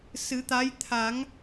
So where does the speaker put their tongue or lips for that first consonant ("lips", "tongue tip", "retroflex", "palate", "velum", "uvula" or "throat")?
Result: tongue tip